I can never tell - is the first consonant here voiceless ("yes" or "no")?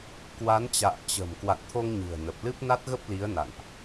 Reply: yes